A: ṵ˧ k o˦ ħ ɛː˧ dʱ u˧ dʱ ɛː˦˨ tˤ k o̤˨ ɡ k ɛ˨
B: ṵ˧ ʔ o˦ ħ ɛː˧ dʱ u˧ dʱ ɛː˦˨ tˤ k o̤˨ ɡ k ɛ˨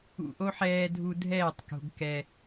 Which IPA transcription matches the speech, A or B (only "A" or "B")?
B